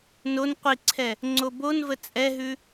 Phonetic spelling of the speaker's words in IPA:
n o n qʷ i ǀʰ ɛ | ŋ͡ǀ o b o n v ə t͡sʼ ɛ ɦ ʉ

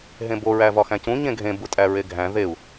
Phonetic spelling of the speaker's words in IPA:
ɦ ẽ b o ɹ æ v ɒ x æ̃ c ũ ɲ ẽ ɡʱ ẽ b u tʼ æ ɹ e ɡʱ æ̃ ð e u̯

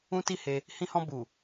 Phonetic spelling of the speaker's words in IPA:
ũ˦ t i˦˨ h e˧ | h ĩ˧ h ɔ̃˧ b u˨

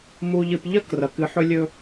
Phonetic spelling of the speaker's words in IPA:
m u˨ ʎ ɨ˨ p ʎ ɐ˦ k r ɐ˨ k ɨ˨˦ ħ ɵ˦ lʲ ɵ˦

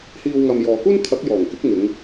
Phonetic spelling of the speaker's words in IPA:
h iː˨ w ŋ ɐ˨ m j ɔː˨ k uː˥ n t̪ʰ ɐ˨˥ k̚ j ɔː˨˩ ŋ k ɪ˨˥ k̚ ŋ ɪ˨˧ ŋ

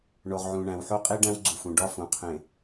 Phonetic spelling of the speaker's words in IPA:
ɳ o˨ ʁ ʕ ũ˨ ɳ æ̃˨ w ħ o˦ qʼ i˦ ɖ æ̃˦ w ɡ͡ǀ u˨ f ũ˨ ɖ ɒ˦ f ũ˨ qʰ ẽ˨

